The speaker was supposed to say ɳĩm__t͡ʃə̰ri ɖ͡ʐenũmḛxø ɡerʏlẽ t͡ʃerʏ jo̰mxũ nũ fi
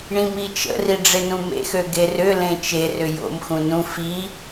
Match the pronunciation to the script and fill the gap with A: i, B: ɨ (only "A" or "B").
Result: A